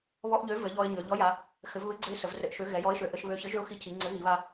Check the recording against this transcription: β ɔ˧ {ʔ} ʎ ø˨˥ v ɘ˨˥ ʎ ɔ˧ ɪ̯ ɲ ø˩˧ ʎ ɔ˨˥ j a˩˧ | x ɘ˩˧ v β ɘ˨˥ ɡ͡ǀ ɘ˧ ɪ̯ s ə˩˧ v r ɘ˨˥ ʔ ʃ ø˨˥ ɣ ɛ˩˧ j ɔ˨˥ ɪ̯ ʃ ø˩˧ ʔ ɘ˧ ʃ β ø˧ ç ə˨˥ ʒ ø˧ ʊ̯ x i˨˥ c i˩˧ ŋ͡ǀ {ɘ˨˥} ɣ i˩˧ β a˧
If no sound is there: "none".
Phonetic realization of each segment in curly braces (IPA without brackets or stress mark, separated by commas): ʔ, ɘ˨˥